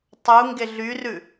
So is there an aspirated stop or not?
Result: no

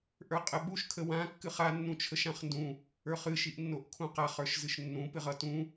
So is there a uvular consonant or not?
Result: yes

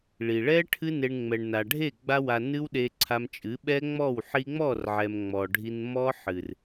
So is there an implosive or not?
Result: yes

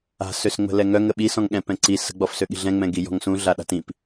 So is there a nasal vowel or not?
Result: yes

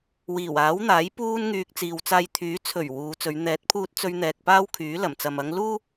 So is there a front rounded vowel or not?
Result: yes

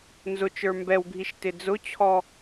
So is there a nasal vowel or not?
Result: no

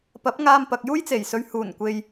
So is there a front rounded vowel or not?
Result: no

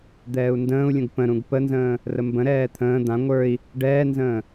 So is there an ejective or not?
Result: no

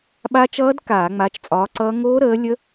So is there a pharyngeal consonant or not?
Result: no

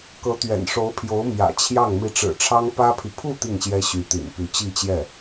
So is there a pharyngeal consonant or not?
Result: no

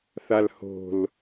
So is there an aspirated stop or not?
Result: no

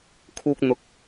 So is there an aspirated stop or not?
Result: yes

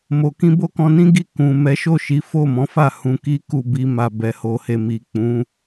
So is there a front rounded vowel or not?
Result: no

